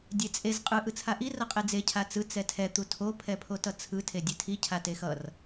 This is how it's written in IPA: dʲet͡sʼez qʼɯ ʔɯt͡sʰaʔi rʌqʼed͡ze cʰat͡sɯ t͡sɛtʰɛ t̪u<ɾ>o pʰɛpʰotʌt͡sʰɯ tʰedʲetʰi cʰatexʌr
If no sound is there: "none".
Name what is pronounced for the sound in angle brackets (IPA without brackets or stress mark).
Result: tʰ